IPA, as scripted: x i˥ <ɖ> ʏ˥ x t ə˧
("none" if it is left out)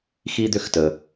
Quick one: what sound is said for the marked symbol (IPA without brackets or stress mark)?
d̪